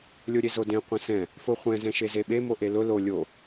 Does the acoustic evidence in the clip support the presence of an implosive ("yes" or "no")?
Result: yes